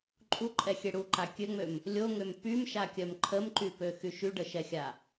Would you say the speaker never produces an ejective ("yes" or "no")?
no